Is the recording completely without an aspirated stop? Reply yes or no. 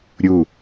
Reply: yes